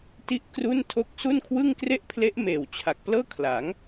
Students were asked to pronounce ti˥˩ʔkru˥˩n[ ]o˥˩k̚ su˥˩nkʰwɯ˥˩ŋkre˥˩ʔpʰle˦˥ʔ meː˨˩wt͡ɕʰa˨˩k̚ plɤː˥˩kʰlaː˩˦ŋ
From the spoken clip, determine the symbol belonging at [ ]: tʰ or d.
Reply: tʰ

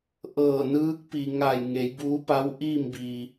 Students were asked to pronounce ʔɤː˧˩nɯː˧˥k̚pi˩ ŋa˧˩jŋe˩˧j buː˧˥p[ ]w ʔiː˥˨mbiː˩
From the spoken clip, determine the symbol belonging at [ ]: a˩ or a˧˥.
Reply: a˧˥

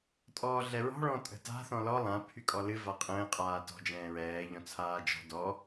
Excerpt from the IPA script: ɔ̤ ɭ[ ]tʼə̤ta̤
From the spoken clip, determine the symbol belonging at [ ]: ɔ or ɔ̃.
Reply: ɔ̃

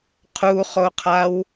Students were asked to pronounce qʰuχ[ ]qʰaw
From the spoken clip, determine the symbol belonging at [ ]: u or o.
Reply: o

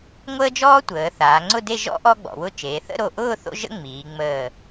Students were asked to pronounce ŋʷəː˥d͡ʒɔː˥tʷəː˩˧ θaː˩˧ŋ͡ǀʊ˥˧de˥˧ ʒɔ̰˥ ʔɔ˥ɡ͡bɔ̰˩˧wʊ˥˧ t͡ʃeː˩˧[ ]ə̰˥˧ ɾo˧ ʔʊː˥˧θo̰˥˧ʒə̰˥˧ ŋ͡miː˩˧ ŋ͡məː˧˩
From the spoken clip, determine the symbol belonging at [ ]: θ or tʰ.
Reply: θ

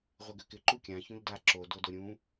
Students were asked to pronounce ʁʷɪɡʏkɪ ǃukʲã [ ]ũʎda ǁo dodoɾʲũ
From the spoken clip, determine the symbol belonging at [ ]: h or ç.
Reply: ç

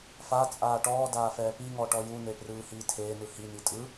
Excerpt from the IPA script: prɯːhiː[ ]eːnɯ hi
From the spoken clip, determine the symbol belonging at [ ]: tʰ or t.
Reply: tʰ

